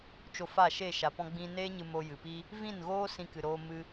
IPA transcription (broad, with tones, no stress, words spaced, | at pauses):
t͡ʃo˧fa˦˨ʃe˦˨ ʃa˨pɔ̃˧ɡ͡bĩ˧ neː˧ɲɨ˨ mo˧jɨ˨pi˦ | vĩ˦˨nɣoː˦ sĩ˧kɨ˨ɾoː˧ mɨ˧